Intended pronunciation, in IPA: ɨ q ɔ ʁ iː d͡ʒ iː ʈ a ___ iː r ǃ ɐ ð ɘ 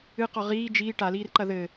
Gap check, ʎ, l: l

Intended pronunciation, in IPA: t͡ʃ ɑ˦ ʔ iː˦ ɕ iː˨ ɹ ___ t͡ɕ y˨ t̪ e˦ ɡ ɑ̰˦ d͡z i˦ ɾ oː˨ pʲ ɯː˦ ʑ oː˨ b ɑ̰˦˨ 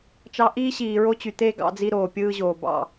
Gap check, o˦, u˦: o˦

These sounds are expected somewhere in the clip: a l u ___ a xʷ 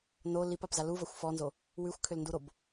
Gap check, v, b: v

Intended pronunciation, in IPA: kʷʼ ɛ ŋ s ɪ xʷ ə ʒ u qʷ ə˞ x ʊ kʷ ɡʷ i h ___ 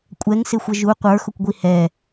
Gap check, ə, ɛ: ɛ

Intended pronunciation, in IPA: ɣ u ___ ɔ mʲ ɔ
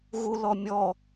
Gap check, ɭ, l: l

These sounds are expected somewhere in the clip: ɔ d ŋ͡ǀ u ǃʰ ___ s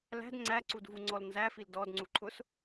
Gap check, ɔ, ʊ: ʊ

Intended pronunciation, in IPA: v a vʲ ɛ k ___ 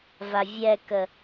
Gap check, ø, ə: ə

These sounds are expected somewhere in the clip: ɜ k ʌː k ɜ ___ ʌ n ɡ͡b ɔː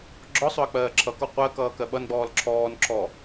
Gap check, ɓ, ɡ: ɓ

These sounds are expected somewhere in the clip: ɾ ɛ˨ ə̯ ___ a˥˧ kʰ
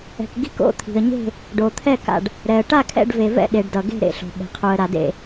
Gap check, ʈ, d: ʈ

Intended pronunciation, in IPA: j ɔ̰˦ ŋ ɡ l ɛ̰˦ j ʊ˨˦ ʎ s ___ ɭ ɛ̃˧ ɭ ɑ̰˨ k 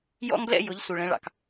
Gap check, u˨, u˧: u˨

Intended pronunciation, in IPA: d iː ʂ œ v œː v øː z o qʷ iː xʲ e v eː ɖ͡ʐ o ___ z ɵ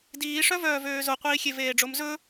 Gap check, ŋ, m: m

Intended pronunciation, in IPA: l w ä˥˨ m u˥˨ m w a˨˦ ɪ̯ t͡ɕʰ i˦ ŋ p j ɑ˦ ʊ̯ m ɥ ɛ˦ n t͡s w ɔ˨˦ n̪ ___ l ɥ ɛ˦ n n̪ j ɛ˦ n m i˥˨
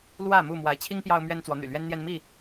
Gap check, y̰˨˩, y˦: y̰˨˩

